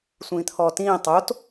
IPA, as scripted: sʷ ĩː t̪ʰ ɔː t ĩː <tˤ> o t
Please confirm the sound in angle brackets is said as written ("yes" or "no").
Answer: yes